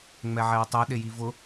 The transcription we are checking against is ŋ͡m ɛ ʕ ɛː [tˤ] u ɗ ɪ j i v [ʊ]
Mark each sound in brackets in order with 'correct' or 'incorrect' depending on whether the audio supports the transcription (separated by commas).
correct, correct